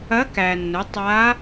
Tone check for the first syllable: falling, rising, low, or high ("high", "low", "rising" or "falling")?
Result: rising